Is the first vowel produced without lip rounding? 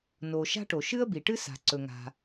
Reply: no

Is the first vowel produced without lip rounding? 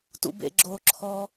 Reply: no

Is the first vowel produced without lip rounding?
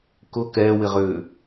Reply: no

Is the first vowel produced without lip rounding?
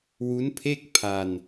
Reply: no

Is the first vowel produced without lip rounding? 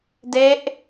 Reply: yes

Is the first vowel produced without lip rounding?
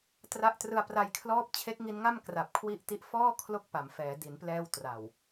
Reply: yes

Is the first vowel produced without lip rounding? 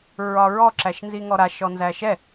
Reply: no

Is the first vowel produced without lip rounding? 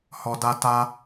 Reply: no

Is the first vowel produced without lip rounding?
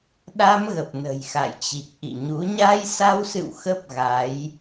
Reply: yes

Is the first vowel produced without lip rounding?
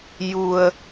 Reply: no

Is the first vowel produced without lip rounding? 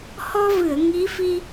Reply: no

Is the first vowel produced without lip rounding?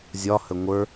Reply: no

